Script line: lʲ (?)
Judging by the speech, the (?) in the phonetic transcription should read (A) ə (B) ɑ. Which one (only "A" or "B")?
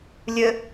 A